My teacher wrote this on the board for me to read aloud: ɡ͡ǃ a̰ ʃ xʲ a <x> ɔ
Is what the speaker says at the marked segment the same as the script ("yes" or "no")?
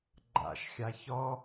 no